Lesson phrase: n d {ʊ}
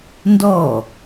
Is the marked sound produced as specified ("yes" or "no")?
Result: no